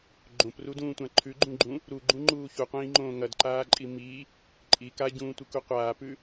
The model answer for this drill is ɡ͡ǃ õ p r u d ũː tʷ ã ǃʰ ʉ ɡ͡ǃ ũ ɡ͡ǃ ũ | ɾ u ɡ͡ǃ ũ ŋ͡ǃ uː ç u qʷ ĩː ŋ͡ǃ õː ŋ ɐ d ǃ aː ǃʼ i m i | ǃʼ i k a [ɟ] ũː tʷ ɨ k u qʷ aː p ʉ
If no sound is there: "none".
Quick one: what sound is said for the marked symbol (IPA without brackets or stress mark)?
ɟ